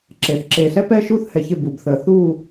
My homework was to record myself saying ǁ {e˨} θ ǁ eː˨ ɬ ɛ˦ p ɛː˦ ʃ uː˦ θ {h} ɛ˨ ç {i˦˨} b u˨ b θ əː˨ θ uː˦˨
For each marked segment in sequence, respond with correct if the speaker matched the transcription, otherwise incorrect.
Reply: correct, correct, incorrect: ɪ˦˨

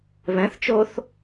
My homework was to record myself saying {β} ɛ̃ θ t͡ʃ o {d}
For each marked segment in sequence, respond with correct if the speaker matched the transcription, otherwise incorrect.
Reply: correct, incorrect: θ

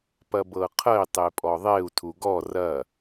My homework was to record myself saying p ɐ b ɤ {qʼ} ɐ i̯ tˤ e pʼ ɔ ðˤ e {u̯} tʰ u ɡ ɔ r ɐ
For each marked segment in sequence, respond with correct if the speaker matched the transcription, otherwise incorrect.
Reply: incorrect: qʰ, correct

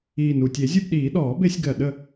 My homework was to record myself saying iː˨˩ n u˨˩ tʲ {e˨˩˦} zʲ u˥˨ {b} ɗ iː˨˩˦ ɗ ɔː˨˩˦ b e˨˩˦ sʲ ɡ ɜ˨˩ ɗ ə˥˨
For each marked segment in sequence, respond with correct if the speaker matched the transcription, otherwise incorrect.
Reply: correct, correct

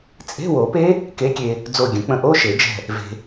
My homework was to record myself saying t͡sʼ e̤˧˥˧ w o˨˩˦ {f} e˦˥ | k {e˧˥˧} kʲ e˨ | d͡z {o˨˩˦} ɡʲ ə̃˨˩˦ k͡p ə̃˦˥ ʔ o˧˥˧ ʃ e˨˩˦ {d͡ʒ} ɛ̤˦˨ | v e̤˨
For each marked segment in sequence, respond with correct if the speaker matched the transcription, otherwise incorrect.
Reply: incorrect: p, incorrect: e˨˥, incorrect: o˦˨, correct

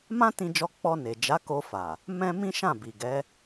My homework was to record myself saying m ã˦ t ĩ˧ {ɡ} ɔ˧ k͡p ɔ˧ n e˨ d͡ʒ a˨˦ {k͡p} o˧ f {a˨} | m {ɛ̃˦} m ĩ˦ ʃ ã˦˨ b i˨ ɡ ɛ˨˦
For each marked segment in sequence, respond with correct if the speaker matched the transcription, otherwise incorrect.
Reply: incorrect: d͡ʒ, incorrect: k, correct, correct

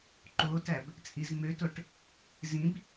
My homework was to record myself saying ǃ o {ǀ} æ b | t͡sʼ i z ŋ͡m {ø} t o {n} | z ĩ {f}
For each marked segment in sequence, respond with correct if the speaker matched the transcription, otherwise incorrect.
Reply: incorrect: t, correct, incorrect: ʈ, incorrect: b

